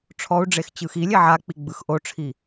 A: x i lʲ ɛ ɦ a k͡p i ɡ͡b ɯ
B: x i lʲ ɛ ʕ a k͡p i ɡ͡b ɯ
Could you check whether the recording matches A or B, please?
B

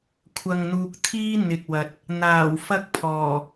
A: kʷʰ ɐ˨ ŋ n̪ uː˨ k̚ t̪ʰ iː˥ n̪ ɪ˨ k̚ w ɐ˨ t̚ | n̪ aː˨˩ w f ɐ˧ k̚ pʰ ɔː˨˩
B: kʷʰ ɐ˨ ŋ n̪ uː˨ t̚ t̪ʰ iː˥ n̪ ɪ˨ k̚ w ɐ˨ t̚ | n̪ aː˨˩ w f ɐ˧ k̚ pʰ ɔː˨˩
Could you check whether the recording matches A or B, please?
A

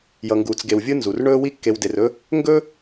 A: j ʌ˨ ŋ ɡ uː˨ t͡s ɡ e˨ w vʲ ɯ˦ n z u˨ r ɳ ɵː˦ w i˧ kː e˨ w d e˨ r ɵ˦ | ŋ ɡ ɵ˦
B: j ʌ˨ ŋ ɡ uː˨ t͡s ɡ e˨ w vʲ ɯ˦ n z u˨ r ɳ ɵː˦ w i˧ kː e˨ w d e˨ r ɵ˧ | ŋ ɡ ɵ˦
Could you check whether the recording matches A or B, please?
A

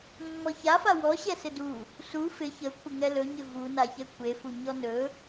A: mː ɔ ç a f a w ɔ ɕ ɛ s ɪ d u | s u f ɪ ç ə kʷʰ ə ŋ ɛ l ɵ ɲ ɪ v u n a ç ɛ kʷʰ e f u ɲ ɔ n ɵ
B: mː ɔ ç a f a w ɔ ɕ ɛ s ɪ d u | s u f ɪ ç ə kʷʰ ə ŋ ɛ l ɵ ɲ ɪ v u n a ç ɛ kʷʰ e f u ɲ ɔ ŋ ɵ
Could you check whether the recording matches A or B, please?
A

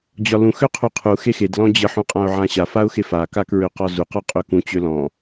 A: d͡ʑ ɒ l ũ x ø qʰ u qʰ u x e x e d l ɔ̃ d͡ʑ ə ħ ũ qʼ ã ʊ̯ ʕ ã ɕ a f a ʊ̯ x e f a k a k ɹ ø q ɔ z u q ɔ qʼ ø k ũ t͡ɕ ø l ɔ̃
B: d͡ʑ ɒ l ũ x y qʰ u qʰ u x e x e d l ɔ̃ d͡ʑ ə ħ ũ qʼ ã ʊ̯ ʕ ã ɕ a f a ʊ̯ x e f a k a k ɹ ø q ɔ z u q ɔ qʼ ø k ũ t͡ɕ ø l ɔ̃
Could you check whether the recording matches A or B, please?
A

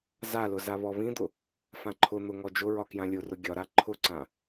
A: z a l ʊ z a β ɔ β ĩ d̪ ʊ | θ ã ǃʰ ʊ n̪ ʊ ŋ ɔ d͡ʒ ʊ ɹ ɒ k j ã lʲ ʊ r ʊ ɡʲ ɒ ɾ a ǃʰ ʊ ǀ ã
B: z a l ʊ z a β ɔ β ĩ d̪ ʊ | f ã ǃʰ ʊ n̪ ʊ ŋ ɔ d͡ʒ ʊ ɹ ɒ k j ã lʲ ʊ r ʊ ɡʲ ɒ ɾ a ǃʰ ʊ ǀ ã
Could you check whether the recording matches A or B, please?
B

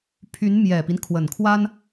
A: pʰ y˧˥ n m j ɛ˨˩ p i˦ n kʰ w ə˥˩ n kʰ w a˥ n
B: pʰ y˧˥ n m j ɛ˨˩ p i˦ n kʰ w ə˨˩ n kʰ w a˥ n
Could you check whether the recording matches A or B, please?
B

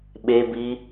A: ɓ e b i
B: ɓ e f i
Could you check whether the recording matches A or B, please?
A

